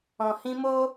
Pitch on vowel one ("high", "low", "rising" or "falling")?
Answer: low